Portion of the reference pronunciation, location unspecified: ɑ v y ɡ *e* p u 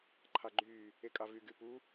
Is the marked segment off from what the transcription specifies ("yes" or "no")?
yes